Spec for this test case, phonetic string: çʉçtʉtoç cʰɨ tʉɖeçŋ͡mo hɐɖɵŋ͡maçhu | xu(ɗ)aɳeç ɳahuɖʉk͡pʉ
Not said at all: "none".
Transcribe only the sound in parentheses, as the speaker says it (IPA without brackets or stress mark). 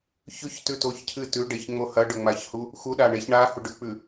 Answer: ɗ